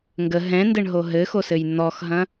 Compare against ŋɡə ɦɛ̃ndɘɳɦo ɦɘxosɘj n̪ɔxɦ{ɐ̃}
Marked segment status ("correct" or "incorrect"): correct